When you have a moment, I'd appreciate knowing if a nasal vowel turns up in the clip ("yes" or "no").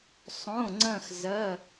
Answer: yes